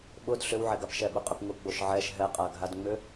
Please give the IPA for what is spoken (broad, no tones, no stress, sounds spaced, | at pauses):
ɓ ʊ d ɬ ʏ w ʕ ɛ ɡ a p ʃ ɛ ɓ ʊ qʼ ʏ p ŋ ʊ ɡ͡b o ʃ ʕ ɛ ʃ ɦ ɛ qʼ a ɡʱ a d ŋ͡m ʏ